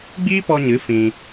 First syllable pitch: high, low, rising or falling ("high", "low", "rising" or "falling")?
high